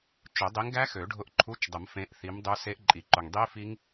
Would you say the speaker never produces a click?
no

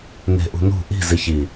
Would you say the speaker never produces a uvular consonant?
yes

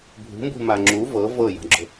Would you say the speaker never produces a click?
no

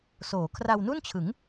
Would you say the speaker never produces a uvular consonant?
yes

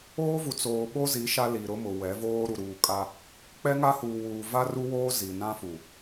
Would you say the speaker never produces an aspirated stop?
yes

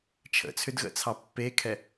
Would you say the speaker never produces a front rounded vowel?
no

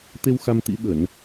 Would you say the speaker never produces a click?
yes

